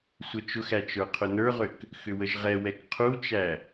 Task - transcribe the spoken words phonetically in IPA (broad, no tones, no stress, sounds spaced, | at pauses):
sʷ ə t͡ʃ ʊ x æ t͡ʃ ə˞ qʰ ʊ n ə˞ ʁ ʏ k | x ʏ w ə ʒ ʁ ɛ w ɛ k qʰ u t͡ʃ æ